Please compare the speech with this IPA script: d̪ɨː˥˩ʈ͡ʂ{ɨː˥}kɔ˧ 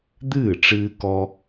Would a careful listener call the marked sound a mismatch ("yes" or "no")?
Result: yes